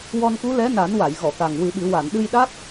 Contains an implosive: yes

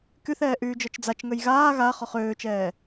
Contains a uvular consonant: yes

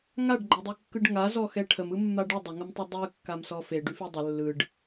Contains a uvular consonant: no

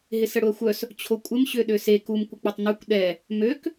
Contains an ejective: yes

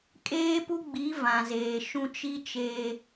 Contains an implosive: no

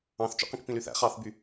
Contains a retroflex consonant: no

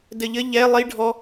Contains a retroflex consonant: yes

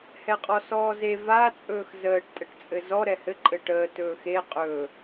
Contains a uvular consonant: yes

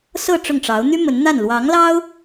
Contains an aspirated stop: no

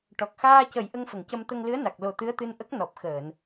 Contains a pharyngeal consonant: no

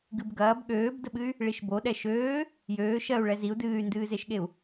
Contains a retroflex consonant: yes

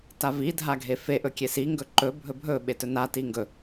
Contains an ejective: no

